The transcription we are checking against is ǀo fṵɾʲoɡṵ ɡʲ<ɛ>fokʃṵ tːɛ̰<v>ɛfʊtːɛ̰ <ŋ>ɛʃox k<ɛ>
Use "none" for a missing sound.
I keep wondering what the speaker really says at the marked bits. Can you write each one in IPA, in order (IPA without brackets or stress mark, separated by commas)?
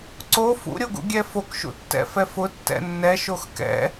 ɛ, f, nː, ɛ̰